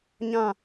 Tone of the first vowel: falling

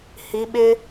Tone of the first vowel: rising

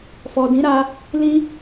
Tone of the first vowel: low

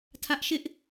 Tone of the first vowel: high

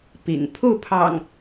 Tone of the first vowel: low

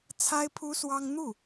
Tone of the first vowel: high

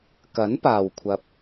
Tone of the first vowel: rising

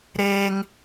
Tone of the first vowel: high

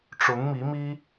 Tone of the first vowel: rising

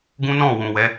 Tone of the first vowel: high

